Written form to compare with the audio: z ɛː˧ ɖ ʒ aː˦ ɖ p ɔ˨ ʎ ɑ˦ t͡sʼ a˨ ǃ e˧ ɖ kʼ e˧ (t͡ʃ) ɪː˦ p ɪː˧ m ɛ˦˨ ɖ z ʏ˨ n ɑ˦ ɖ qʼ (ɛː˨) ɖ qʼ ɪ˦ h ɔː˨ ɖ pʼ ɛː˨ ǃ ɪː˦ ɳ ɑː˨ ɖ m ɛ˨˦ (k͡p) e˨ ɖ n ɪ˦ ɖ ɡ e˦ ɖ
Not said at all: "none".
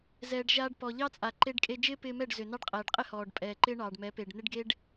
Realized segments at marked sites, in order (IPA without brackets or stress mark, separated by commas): d͡ʒ, ɛː˨, p